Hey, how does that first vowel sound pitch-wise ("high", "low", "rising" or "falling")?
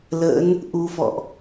rising